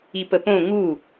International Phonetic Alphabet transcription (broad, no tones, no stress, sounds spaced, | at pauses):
i p ə p õ ŋ u